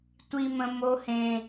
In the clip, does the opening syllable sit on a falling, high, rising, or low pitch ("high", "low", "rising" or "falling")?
high